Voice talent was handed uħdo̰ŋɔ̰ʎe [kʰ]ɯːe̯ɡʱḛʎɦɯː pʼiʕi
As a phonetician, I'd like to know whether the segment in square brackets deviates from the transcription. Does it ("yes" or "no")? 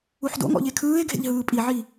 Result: no